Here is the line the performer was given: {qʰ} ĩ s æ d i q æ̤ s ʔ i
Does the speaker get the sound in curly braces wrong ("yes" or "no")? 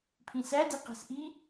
yes